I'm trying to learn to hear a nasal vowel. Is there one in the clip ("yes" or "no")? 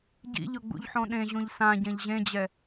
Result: yes